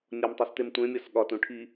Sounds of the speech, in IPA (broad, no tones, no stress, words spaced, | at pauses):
nʲɒmtˤes temtʷẽmʲɒs ɠɒ tũʈʰi